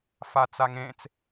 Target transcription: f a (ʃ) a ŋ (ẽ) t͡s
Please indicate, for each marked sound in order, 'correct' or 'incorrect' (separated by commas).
incorrect, correct